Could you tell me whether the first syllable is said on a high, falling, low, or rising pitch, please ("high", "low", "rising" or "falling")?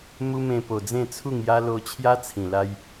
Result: high